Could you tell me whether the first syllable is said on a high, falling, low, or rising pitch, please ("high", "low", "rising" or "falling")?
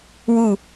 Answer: falling